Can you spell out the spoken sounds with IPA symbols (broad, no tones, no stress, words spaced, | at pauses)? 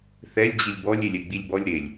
θɛlʲ d͡ʑilʲbɔlʲ elʲɛɡ͡bilʲbɔlʲ ɾelʲ